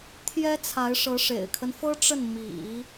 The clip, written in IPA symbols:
t̪ʰ j ɛ˥ t͡sʰ a˧˥ ɪ̯ ʂ ɤ˧˥ ʂ ḛ˨˩ ɪ̯ kʰ ə˦ n f ɤ˥ ʈ͡ʂ ə˥˩ n m ḭ˨˩˦

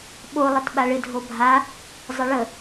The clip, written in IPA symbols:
ɓ o lˠ ə t ɓ a ɭ ɪ dʱ o bʱ a | zˤ ə ɭ ə

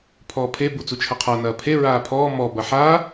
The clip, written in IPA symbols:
pʰ ɔː pʰ e b u t͡s u t͡ʃʰ ɐ qʰ a n ɐː pʰ e ɹ aː pʰ ɔː m ɔ b ɐ ħ a

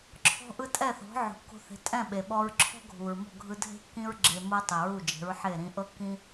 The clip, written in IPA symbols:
ǁʰ ɔ̤˧ ʔ ɯ˧ tʼ ɛ˥˩ θ ɔ̤˩˥ ʕ o̤˩ kː o̤˧ θ e̤˩˥ tʼ ɛ̃˥˩ ɓ e˩ ɓ ɔ˧ ɹ ǁʰ ɔ̤˥ ɡʱ u˩ ɹ m ɔ̤˥˩ ɡʱ ɯ˧ dʱ e̤˥ kː ĩ˥ ɹ ɡ͡ǁ e˧ m ɤ˥ tˤ i˩ ɹ u˥˩ d͡ʒ e̤˩˥ ɹ ħ e˥˩ ɾ ĩ˧ ʔ ɤ˥ kː ĩ˥

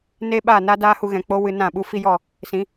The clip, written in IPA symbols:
n e˦ ɓ a˦˨ n a˦ d aː˦ h u˧ ɣ ɛ̃˨ k͡p o˦ w ɨ˧ n ã˦˨ ɓ u˦ f i˦ j ɔ˦˨ | s ĩ˨˦

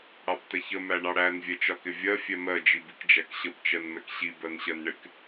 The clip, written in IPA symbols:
ɽ ɑ b t ɛ ç ə m æ ɳ ɑ ɽ æ n vʲ ɛ t͡ʃ ɒ k ɪ vʲ ɜ fʲ ɛ m ɜ d͡ʒ i b i k d͡ʒ æ k ɕ ə b t͡ʃ ɜ n m ɛ k ɕ i b ɜ n ɕ ɜ n ɳ ɪ k

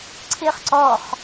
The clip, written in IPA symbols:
ǀʰ ɪː χ ǀ ɔ χ

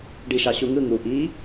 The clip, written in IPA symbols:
ɖ i ʃ ɑ ɕ u ŋ ɯ ŋ u ʔ i

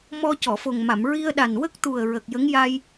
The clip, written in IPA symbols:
m ɔ˧ c ɔ˨˩˨ f o˨˩ ŋ m a˨˩˨ m ɹ i˧ ə̯ ɗ a˨˩ n w ə˦˥ k̚ t̪ u˨˩ ə̯ ɹ ə˨˩ k̚ j ə˧˥ ŋ j a˧ j

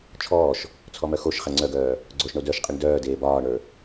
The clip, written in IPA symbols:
t͡ʃʰ ɔː ʃ | t͡sʰ ɔ m œ x o ʃ χ ɛ ŋ͡ǀ œ ɡ œː | ɡ͡ǀ o ʃ ɳ o d œ ʃ qʼ i ɳ d œː d eː b ɒː ɳ ə˞

